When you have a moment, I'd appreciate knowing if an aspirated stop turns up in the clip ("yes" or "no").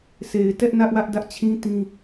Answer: yes